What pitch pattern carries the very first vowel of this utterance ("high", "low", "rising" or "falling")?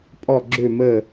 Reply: falling